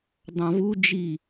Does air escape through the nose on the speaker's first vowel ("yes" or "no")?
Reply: yes